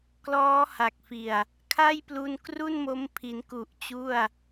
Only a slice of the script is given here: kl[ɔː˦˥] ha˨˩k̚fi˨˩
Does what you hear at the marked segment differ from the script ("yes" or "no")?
no